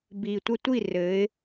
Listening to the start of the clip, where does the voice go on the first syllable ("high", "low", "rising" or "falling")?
low